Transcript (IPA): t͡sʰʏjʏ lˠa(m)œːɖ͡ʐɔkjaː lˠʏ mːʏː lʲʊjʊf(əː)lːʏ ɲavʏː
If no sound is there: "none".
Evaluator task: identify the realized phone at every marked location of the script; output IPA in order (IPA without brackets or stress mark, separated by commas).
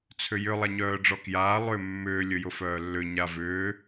ɲ, œː